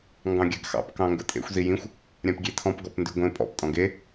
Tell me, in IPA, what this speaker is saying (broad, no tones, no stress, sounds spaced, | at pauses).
ŋ ɡ ɑ̃ ɡʲ a ɡ x ɑ̰ p k ɑ̃ ŋ ɡ ʊ tʼ ḛ xʷ z i j ĩ xʷ | ɾʲ ã p ɡʲ e tʰ ɔ̃ p ɡ ɔ p n d ʉ ɡʷ ẽ pʼ ɔ̰ p tʼ ɔ̃ ɡ e